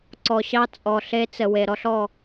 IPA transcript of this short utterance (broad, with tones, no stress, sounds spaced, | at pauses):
ǀ ɔ˨ ɕ ɑ˦ t͡sʼ ɔ˨ ɬ e˦ t͡s ə˨ w e˨ ɾ ɔ˦ ɬ ɔ˦˨